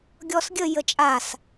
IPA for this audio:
ɡʲɔsɡʲə jət͡ʃʼas

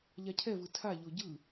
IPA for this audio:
ʎacʰɛvɯ tʰaʎo ɟɯ

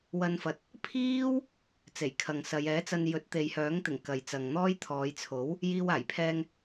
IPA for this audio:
wɐ˧nfɐ˨t̚ | pʰiː˥w | t͡se˨˩jkʰɐ˨ŋsɐ˨˧j ɛː˨˥t͡sɐ˧n jɵ˨˥t̚ t̪e˨jhœː˨˥ŋt̪ɪ˨˩ŋ kɐ˨jt͡sɐ˨ŋn̪ɔː˥j t̪ʰɔː˨˧jt͡sʰo˨˥w | jiː˧waː˨˩j pʰɛː˧ŋ

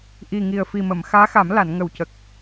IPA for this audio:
ʔi˨˩ŋi˨˩ə̯ fi˨˩mə˨˩˨mxaː˧˥xa˨˩˦m la˨˩˨nŋə˨˩w cə˨˩k̚

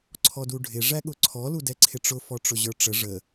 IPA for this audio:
ǀʰɔduɖʱɪ ʐæɠʊǀʰɔ ludɛǀʰɪʈ͡ʂʊ fɔʈ͡ʂʊʑə˞ʈ͡ʂə ʐə

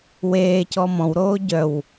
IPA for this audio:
weːcɔ mɔ̃wɾoː ɟœw

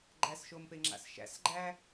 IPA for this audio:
ɡ͡ǃæsʃompeŋ͡ǁa̰s ʃæ̰sɡ͡ǃæ

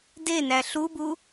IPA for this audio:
denæ ɬubu

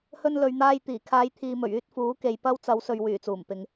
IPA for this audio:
hɵ˧nlɵ˨ɥn̪aː˧j t̪iː˨˩kʰaː˨˧jt̪ʰiː˨ mɵ˨˩ɥyː˧t̚ fuː˨˥ke˨j pɐ˥wt͡sɐ˨˥wsɵ˨ɥ wyː˨˩t͡suː˨˩mpɪ˨ŋ

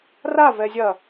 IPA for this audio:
ra vɛzʲɐ

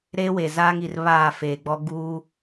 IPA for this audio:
ɾeː˦we˨ zaː˦ŋi˨r βaː˦˨feː˨ɡ͡bɔ˦ ɡuː˦

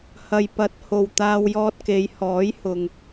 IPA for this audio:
hɐ˨jpɐ˨˥t̚ho˨w t̪aː˧wjɔː˧t̚ke˨˧jhɔː˨˥j hʊ˨ŋ

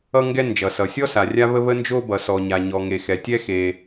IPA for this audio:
ʌ˥ŋɡɛ˥ nd͡ʒʌ˩sʌ˩ sʲɔ˥ sa˩rʲa˥βə˥ βə˥nd͡ʒo˥bʌ˩ sɔ˩ɲa˩ɲɔ˩ ŋe˩xɛ˩tʲɛ˥ xe˩

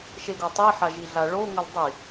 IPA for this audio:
ʃeɡotˤi ħaʒiɮaɭo ŋəlˠdˤi

